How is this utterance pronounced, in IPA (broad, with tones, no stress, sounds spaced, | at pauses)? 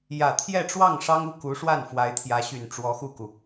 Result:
j ä˨˩ t̪ʰ j ɛ˥˧ ʈ͡ʂ w ɑ˥˩ ŋ ʂ ɑ˥ ŋ u˥˩ k u˧˥ ʂ w a˥˩ n f w a˧˥ ɪ̯ t̪ʰ j ä˧˥ ɕ y˨˩ n ʈ͡ʂ w ɔ˧˥ x u˥˩ k u˩